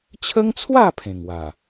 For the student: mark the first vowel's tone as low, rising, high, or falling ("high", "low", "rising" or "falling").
high